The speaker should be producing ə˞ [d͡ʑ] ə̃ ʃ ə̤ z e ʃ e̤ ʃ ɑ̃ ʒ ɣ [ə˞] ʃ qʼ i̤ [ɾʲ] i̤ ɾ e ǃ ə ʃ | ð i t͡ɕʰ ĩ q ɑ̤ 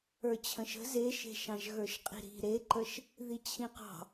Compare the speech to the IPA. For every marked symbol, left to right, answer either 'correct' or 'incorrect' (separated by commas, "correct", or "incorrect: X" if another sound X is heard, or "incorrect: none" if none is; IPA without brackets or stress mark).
incorrect: t͡ɕʰ, correct, incorrect: ɾ